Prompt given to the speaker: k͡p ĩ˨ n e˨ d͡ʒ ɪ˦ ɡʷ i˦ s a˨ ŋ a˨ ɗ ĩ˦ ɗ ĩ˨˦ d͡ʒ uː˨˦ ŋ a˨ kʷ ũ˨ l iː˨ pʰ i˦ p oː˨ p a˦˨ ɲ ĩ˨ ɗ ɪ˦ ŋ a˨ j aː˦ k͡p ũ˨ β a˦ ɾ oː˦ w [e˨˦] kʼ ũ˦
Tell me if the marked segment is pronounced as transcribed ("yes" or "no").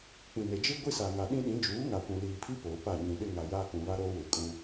no